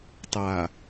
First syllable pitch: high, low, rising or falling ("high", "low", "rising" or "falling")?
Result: low